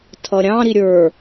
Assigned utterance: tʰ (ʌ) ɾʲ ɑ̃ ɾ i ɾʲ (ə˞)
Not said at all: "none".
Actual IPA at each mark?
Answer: ʌ, ə˞

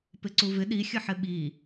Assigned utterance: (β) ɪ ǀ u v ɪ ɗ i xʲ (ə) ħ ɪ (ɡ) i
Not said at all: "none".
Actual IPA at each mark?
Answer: p, ə, ɓ

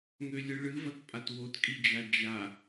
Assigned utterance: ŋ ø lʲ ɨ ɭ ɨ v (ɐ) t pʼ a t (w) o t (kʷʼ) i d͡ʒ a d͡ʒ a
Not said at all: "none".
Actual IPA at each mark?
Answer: ɐ, w, kʼ

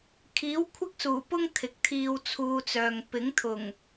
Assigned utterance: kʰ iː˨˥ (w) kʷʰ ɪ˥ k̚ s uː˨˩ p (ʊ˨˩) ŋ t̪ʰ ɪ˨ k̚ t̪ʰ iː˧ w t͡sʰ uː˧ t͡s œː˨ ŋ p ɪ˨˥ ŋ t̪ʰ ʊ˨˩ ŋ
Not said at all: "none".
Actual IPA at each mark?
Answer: w, ʊ˥

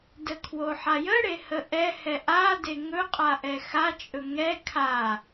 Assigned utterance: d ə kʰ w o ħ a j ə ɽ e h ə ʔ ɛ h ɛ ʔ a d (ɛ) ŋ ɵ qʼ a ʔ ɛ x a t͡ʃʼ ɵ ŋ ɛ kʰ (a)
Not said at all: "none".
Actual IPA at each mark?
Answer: e, a

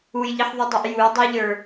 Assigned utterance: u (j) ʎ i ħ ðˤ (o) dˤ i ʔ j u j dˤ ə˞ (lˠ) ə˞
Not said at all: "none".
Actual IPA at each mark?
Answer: j, u, ʎ

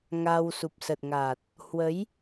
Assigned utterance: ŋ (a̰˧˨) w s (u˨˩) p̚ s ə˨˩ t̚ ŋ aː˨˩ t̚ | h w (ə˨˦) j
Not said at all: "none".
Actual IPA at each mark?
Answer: a˧, u˨˩, ə˨˦

